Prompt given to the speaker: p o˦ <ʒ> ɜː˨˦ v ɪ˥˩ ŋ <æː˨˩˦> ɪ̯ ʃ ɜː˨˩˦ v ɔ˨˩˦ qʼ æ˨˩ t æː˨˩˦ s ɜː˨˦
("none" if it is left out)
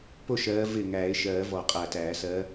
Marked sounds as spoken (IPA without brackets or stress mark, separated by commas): ʃ, æː˨˩˦